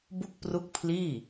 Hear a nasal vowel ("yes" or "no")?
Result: no